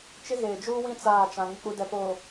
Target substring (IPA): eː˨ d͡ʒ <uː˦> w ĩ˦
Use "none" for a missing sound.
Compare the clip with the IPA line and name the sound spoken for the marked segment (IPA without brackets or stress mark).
uː˦